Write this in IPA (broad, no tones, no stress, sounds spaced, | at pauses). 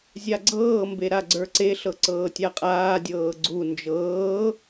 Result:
zʲ a ɡ͡ǀ ɤː m b e ɾ a ɡ͡ǀ ə˞ ǀ e ɬ ɤ ǀ ɤː tʲ a qʼ aː dʲ ɤː ɡ͡ǀ u n d͡ʒ ɤː